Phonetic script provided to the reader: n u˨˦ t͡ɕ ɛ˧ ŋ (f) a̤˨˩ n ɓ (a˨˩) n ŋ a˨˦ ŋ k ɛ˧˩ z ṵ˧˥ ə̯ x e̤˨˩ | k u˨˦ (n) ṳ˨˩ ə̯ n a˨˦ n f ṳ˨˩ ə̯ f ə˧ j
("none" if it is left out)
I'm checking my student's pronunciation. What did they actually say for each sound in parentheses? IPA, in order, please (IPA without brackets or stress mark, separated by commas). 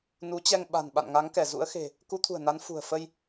ɓ, a̰˧˨, t̪ʰ